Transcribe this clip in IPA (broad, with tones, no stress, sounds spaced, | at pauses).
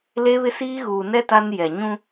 l e˦ β ɪ˦ s iː˦ ɣ uː˨ n ɛ˦ t a˦ n j ɛ˨ ɲ ũ˦